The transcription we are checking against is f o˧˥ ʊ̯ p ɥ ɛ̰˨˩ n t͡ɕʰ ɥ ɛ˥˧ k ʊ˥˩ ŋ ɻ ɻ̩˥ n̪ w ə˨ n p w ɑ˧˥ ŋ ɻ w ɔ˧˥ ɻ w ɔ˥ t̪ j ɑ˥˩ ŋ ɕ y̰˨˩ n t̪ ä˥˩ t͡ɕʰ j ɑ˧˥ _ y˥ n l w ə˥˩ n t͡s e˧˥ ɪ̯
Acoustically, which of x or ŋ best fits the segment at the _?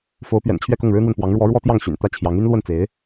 ŋ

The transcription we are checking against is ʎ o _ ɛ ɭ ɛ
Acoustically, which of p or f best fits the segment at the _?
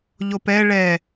p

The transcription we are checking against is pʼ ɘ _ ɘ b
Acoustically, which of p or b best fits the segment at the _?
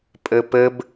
p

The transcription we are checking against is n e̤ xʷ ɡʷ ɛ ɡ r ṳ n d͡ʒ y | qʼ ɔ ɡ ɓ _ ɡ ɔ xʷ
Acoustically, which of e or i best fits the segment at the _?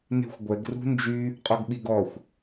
i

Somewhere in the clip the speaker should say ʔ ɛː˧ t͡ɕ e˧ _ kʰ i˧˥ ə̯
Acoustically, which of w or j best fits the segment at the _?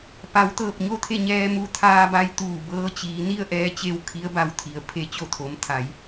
w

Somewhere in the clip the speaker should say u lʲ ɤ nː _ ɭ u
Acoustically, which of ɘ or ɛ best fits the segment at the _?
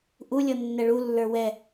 ɛ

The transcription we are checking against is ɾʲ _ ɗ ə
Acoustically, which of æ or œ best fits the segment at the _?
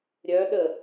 œ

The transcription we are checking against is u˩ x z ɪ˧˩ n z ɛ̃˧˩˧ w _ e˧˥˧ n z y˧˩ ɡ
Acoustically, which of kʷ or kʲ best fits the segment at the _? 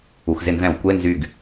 kʷ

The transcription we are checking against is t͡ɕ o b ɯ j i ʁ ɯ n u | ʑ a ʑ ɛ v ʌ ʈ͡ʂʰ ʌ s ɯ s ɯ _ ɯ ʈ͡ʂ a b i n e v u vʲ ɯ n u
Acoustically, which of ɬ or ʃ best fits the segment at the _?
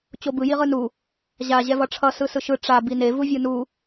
ʃ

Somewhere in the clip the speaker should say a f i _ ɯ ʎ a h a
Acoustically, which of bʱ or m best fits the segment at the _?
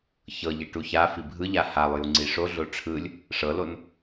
bʱ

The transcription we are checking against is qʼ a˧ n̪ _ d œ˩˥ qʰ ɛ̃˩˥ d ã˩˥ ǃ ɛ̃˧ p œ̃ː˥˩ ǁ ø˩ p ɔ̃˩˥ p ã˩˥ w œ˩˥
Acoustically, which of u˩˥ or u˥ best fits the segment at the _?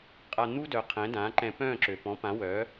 u˥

